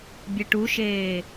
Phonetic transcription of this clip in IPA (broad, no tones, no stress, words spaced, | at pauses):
bʲɛʈuʃeː